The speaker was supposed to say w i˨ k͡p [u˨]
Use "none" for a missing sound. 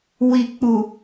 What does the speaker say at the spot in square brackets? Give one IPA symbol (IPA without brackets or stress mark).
u˨